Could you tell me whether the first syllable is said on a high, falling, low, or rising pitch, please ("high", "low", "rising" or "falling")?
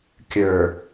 low